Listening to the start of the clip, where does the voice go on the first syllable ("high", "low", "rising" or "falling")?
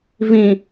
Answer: low